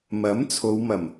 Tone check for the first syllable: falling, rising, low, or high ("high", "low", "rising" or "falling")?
rising